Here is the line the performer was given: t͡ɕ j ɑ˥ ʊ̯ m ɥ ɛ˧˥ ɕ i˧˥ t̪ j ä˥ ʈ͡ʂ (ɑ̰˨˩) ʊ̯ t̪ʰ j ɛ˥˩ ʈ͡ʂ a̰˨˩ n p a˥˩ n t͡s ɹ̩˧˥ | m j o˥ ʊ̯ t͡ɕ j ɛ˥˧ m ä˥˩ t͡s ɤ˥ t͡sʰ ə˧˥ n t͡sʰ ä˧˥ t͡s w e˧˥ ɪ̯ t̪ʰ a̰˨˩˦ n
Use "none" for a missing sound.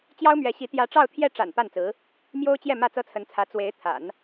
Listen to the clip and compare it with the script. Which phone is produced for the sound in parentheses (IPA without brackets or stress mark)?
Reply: ɑ˥˧